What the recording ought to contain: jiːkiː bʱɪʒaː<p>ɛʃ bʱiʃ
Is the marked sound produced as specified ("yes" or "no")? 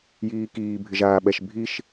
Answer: no